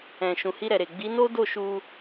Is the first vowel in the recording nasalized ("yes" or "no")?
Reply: yes